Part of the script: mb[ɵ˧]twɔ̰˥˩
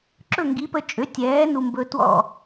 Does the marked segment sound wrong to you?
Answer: no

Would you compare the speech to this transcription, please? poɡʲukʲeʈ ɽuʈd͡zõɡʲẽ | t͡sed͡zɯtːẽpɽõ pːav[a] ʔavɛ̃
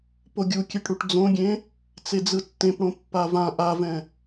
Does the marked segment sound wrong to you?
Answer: yes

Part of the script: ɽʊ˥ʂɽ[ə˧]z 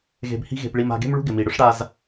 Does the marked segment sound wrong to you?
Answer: yes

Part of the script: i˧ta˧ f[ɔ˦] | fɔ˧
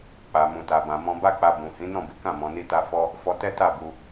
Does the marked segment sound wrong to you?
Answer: no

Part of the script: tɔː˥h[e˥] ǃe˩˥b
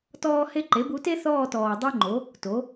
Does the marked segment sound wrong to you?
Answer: no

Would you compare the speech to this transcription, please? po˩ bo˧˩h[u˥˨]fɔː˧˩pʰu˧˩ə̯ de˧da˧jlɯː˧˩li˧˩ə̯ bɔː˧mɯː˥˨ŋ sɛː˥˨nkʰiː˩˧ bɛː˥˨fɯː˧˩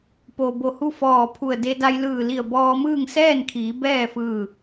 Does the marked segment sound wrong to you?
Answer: no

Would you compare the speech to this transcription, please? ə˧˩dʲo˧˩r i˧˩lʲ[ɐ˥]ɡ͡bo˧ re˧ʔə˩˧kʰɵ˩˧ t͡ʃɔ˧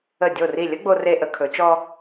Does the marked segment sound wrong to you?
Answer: yes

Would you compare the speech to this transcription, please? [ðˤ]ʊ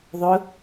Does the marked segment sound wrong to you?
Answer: no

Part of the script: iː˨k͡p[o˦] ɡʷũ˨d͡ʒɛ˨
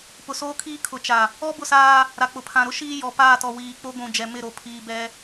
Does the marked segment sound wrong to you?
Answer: no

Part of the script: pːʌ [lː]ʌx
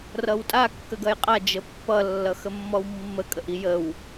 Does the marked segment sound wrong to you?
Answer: no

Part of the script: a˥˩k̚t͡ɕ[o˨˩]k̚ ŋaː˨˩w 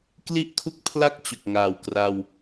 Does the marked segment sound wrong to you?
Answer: no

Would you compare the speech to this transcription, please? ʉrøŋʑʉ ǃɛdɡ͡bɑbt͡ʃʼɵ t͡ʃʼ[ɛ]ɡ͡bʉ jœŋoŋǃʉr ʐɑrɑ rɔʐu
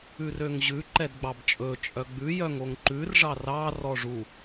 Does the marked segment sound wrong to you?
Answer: yes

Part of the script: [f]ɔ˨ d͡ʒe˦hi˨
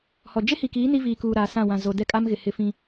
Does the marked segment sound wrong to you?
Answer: yes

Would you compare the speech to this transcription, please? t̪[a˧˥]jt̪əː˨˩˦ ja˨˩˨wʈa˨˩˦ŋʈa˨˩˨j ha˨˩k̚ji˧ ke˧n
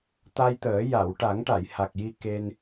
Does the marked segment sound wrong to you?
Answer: yes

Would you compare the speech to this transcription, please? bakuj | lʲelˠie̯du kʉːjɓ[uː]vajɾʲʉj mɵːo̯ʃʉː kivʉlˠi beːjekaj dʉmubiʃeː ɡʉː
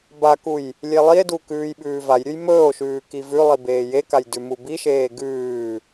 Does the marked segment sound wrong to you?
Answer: yes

